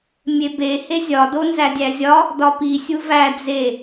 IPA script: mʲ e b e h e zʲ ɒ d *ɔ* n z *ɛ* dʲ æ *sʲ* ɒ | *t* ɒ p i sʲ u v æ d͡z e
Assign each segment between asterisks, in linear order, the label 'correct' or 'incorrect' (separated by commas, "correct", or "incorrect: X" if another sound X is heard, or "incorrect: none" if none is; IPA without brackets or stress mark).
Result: incorrect: o, incorrect: æ, incorrect: zʲ, incorrect: d